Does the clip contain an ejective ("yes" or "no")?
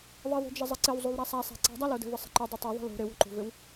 no